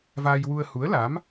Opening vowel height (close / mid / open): open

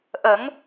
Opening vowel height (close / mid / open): mid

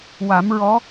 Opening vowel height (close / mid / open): open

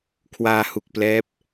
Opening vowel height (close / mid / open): open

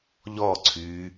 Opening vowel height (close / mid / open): mid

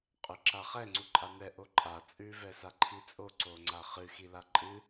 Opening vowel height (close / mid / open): close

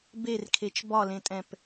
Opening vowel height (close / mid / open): mid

